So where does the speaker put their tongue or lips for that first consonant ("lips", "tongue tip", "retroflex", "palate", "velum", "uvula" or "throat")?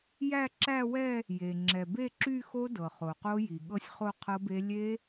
palate